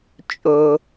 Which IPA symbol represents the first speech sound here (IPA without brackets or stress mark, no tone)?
t͡ʃʼ